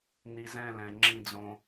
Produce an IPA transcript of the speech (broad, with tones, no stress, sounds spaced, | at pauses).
n i˨ z ɛ̃˦˨ l ɛ̃˨ ŋ͡ǁ ĩ˦ d͡z õ˦